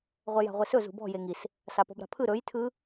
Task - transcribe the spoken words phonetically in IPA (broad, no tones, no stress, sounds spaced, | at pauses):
ʁʷ ɛ j a̤ ʁʷ e s ɵ z ṳ b ɔ̤ j e ŋ i s | s a p ɔ̤ b ɾ a̤ pʰ ɯ ɾ ɵ j tʰ ɯ